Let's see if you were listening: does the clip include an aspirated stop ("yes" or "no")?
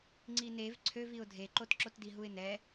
yes